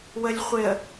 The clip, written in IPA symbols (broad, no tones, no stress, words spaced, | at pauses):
wəlʲχʷɪə̯